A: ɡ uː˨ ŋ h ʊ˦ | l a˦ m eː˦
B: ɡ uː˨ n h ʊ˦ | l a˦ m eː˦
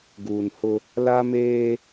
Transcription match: B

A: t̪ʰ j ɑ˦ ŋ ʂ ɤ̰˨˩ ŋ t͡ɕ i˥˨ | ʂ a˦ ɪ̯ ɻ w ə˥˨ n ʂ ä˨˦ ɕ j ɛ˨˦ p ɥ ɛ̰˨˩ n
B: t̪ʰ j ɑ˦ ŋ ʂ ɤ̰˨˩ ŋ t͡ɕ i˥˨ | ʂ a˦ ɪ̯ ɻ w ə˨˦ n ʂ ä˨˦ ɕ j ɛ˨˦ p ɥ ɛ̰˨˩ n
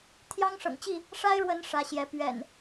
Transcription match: B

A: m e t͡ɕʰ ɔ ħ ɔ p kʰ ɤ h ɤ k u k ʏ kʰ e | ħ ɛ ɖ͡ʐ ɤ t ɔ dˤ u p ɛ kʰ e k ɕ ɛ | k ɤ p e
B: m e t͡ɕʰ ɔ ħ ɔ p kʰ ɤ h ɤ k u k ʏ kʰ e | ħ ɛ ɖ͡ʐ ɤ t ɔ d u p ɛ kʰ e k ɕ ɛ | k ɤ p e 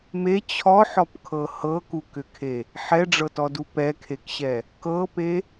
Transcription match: B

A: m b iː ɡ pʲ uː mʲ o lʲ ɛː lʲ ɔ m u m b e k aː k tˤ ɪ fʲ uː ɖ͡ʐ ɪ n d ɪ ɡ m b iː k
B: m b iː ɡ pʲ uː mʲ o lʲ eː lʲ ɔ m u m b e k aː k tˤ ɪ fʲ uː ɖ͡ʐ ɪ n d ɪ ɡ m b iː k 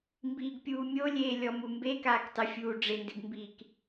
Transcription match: B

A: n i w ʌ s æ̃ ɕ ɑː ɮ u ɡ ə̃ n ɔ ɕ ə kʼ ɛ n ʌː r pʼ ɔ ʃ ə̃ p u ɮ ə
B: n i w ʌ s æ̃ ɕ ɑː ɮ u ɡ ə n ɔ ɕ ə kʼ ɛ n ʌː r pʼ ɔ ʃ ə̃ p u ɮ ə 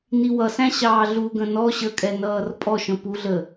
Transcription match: A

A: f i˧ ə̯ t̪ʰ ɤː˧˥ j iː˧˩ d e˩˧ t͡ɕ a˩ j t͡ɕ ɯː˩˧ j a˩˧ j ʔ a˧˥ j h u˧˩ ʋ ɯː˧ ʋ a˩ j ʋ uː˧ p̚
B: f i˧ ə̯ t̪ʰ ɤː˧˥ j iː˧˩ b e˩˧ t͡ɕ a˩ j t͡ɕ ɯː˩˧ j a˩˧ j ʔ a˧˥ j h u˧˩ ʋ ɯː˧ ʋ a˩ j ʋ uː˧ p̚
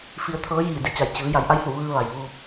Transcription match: A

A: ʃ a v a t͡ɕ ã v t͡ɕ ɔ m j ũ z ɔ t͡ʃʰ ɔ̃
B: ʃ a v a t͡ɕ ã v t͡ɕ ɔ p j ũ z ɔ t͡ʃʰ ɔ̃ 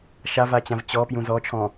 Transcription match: B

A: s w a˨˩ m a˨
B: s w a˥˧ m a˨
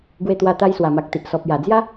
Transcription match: A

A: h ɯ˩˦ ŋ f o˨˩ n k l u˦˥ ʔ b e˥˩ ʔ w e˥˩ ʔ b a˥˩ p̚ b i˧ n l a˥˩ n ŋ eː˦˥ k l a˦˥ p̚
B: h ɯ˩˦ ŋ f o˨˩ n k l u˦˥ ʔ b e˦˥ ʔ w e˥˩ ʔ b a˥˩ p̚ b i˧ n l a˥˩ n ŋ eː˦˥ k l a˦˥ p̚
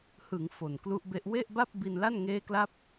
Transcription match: B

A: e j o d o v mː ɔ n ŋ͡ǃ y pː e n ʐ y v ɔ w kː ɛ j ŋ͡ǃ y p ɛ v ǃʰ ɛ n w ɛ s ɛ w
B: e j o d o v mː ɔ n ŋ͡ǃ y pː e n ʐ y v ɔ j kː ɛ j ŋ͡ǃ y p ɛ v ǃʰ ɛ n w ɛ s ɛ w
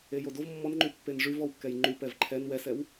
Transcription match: A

